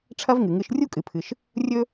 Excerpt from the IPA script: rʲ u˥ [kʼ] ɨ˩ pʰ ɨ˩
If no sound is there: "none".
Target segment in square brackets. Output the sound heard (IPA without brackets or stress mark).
kʼ